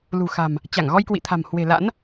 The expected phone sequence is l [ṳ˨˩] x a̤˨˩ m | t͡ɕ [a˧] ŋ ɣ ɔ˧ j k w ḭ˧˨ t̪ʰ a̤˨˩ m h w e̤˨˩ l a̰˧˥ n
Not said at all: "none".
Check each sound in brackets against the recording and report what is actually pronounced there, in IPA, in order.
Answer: ṳ˨˩, a˧˩

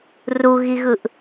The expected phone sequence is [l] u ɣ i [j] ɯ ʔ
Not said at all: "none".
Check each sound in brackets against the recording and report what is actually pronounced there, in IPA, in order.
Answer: r, ɣ

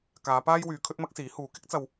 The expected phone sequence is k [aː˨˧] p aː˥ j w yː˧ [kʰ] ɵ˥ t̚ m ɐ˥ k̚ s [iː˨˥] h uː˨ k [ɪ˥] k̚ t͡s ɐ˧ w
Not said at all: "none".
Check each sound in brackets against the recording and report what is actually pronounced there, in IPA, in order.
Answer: aː˨˧, kʰ, iː˨˥, ɪ˥

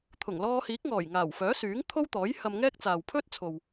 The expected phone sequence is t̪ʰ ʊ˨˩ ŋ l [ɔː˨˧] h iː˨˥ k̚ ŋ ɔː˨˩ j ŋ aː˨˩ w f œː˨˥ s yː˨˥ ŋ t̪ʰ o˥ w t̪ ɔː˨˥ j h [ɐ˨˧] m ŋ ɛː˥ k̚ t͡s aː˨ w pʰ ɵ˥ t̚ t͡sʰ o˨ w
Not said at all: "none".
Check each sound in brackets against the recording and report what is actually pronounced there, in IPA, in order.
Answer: ɔː˧, ɐ˧

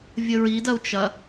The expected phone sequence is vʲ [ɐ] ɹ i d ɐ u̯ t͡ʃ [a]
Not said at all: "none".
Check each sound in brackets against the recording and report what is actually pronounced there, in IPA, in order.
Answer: ə, ɐ

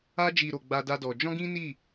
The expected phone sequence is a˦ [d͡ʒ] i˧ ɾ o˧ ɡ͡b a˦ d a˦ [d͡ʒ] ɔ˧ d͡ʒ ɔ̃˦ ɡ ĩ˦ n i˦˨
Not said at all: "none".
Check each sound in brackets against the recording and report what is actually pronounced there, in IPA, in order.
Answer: d͡ʒ, d

